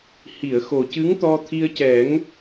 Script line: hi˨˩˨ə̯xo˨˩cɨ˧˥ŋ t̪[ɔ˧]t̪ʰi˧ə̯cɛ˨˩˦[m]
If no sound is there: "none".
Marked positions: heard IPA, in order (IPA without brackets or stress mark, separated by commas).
ɔ˧, ŋ